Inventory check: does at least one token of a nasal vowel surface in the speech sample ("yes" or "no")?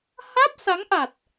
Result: no